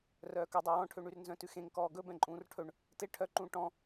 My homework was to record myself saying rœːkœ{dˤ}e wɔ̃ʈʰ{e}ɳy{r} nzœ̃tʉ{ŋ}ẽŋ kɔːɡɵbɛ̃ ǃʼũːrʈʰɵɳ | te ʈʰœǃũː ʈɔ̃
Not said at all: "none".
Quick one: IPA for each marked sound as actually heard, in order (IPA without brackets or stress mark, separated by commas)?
dˤ, ø, r, x